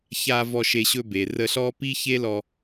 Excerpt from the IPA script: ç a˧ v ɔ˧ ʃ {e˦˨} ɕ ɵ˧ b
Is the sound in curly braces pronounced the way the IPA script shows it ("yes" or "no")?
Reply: no